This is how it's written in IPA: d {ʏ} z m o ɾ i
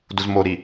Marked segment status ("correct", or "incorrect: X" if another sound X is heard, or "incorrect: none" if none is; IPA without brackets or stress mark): incorrect: u